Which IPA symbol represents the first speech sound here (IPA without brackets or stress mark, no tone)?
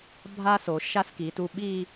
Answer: bʱ